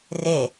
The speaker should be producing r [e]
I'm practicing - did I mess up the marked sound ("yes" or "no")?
no